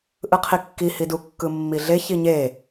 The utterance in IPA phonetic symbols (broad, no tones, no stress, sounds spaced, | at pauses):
ʔ ɯ qʰ i kː i h i d u kː ɯ mː i ɮ e ç i ɲ e